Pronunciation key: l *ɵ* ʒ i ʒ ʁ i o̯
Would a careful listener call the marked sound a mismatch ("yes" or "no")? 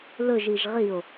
no